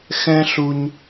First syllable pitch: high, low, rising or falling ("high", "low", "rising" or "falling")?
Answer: high